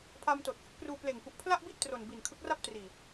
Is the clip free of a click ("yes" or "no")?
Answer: yes